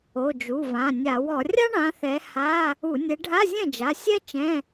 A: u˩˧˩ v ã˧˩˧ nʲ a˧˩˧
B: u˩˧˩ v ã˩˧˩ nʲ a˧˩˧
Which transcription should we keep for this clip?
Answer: B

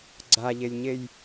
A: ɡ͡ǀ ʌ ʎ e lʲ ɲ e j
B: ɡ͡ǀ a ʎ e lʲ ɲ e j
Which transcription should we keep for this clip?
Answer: B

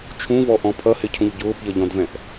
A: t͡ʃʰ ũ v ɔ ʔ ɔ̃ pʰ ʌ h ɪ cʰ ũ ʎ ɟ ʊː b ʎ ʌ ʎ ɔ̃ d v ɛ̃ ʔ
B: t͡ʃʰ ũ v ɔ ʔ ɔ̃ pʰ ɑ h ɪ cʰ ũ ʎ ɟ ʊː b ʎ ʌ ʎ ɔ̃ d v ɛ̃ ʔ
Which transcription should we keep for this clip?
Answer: A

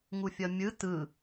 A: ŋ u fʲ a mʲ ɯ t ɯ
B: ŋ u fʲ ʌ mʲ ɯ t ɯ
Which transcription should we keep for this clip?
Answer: B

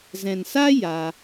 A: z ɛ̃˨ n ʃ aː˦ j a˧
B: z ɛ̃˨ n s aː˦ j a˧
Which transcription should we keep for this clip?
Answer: B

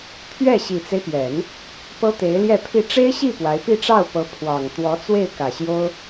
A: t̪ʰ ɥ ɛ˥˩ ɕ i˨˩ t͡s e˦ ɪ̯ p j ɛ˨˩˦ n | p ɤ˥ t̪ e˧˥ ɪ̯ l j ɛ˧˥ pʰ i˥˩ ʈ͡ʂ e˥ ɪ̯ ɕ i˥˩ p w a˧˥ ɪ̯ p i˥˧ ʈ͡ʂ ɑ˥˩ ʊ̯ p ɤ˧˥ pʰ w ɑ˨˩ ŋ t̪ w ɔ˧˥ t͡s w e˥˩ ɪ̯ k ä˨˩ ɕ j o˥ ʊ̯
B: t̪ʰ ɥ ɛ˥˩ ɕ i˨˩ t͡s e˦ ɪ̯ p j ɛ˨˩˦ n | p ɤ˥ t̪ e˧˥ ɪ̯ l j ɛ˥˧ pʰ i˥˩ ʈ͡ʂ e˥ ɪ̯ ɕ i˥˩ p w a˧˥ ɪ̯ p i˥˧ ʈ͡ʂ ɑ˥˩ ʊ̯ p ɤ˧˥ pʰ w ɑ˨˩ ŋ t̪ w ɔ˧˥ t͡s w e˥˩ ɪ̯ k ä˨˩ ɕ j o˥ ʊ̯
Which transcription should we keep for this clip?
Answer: B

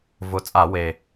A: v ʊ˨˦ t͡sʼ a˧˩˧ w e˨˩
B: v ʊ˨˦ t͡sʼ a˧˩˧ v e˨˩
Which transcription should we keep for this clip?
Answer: A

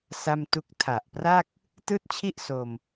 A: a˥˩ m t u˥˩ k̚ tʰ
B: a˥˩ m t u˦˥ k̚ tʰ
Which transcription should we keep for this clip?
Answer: A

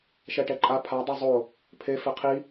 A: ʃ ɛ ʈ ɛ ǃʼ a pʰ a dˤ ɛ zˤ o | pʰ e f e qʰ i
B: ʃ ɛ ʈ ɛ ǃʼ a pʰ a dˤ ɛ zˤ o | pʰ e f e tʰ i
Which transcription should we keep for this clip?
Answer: A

